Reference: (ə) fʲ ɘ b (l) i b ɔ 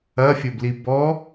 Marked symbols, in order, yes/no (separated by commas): no, yes